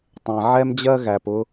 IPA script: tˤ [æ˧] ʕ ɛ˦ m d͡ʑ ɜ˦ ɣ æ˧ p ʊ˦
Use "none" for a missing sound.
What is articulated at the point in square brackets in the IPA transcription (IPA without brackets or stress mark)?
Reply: æ̃˧